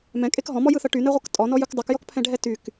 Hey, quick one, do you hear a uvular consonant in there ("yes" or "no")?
yes